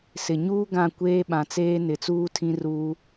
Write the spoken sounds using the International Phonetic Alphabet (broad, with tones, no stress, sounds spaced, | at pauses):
s ɪ˨ ɲ uː˦ ɡ ã˦˨ kʷ eː˦ ɓ ã˨ t͡s eː˦ n ɪ˨ t͡s uː˦ tʰ ĩ˦ r uː˦